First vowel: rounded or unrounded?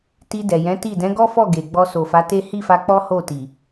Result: unrounded